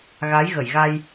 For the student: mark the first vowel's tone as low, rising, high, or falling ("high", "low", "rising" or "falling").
rising